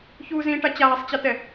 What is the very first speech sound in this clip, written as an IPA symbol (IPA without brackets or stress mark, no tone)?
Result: ç